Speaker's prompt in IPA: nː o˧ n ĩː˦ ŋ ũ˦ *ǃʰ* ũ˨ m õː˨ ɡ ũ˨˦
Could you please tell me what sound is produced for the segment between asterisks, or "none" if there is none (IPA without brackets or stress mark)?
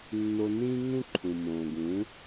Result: ǃʰ